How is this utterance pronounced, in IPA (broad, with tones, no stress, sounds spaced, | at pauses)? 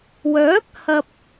w œː˨˥ k̚ h ɐ˨ p̚